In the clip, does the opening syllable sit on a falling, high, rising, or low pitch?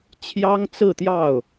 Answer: high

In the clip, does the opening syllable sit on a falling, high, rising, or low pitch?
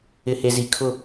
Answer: low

